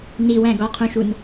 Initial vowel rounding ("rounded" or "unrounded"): unrounded